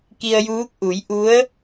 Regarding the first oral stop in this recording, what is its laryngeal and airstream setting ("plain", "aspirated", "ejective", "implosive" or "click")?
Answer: plain